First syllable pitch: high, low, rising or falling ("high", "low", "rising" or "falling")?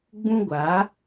high